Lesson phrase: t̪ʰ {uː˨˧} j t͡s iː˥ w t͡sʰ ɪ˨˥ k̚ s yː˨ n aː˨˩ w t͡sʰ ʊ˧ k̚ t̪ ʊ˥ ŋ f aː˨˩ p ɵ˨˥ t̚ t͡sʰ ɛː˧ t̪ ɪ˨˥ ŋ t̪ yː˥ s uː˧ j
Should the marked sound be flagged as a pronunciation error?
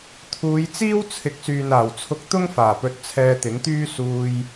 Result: no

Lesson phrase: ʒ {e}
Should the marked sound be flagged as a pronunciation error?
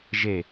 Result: no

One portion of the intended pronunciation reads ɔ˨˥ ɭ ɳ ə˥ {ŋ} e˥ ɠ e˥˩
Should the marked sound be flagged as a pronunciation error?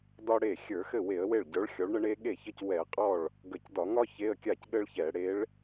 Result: yes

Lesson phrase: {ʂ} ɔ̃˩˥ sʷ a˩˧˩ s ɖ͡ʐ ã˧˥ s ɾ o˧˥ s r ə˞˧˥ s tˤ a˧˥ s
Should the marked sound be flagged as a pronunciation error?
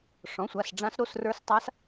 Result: no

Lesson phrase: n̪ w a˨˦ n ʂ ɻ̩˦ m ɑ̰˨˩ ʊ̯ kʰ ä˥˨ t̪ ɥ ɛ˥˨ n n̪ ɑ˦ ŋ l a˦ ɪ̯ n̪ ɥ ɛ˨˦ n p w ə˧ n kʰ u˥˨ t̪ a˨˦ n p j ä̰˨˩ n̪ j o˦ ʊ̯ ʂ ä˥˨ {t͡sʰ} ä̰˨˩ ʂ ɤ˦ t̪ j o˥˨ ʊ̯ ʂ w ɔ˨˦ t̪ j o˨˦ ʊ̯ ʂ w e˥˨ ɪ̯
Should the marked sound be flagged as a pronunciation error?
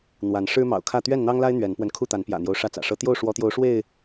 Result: yes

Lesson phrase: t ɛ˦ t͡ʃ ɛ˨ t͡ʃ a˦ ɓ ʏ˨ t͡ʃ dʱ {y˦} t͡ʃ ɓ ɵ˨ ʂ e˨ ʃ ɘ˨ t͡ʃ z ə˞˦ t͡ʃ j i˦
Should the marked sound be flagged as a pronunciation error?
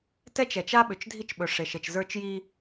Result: yes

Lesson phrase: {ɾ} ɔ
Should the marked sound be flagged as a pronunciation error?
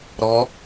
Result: no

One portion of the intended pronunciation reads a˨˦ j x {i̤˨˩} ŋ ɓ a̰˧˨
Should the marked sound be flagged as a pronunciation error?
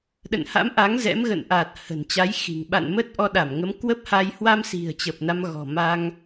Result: no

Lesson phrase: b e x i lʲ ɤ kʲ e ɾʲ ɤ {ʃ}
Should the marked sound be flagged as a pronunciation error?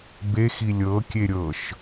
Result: no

